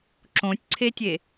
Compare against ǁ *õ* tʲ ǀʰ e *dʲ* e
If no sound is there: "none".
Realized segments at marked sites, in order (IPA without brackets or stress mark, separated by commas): õ, tʲ